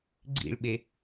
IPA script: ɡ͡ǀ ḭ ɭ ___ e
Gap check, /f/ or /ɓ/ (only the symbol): ɓ